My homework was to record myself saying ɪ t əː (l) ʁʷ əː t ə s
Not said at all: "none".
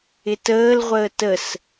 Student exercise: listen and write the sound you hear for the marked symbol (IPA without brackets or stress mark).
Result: l